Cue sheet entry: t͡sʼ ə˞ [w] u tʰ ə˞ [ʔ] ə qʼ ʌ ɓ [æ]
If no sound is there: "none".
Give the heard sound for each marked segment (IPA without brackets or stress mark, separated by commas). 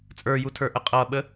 j, ʔ, ə